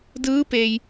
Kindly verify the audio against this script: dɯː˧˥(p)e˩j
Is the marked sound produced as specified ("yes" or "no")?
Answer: yes